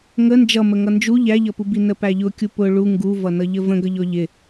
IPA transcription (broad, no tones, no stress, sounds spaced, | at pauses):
ŋ ə n d͡ʒ ʌ m ə ŋ ʌ n d͡ʒ u ʎ æ ʎ ʌ p u b i n ə p æ ʎ ʊ kʲ u p ʊ ɭ u ŋ ɡ u v ʌ n ʌ ʎ ə v ə̃ ɡ ʌ ʎ ɔ ʎ ɪ